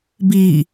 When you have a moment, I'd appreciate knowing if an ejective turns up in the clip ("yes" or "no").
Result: no